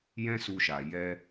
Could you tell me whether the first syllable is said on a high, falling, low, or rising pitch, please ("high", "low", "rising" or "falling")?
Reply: high